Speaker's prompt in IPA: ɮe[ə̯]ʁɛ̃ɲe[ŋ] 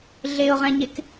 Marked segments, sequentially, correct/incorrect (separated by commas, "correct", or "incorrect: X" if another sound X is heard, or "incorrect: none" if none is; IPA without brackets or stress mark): incorrect: ʊ̯, incorrect: k